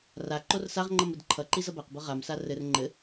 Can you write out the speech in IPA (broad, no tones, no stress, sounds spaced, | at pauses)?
r a ǃ o r s a ʁ ŋ͡ǃ ʌ m ɘ d ǃʰ ʌ ǃ i z ʌ b a q b ɤ ʁ a m s a r ɘ r ŋ͡ǃ ɘ